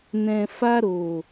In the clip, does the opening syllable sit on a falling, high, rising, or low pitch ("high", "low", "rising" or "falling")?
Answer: low